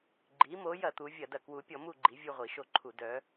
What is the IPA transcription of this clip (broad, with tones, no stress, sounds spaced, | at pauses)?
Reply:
ɡ͡ǃ i˩˧ m o˩˧ j ɐ˧˩˧ t̪ u˩˧ vʲ ɐ˧˩˧ d ɐ˧˩˧ k w u˩˧ pʲ ɔ˧˩˧ m u˦˨ ɡ͡ǃ i˩˧ vʲ u˦˨ ʁʷ i˧˩˧ ʃ o˦˨ ǃʰ u˧˩˧ d œ˩˧